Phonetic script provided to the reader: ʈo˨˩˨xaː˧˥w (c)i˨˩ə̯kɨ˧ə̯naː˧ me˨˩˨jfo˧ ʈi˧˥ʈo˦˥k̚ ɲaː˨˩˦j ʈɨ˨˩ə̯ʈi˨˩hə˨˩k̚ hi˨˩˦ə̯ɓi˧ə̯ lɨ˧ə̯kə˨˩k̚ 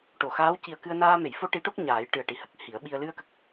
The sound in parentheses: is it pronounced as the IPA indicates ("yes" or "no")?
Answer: yes